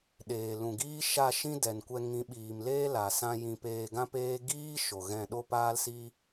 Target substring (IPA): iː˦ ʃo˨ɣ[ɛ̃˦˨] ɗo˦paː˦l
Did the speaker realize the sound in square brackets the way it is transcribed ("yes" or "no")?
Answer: yes